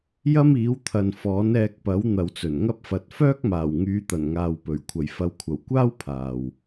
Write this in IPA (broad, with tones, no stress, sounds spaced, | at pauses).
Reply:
j ɐ˥ m iː˨˥ w t̪ʰ ɐ˨ n f ɔː˨˥ n ɛː˧ k̚ p ɐ˨˥ w n̪ ɐ˨ w t͡s ɵ˨˩ n ŋ ɐ˥ p̚ f ɐ˨˥ t̚ f œː˥ k̚ m aː˨˩ w ŋ yː˨˧ t̪ ɐ˨˩ n ŋ aː˨ w p ɵ˨˩ ɥ kʷʰ ɐ˨˩ j f ɐ˨˥ w kʷʰ ɐ˨˩ w kʷ aː˥ w pʰ aː˨ w